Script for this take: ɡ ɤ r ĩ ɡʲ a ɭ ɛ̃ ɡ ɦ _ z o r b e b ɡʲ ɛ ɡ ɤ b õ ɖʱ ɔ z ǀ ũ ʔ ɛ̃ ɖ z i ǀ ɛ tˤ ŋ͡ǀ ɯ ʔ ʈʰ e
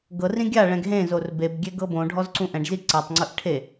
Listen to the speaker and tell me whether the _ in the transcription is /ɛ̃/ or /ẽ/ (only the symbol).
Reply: ẽ